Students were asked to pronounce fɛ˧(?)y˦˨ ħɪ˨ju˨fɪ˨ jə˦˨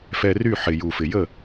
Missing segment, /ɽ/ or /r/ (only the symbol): r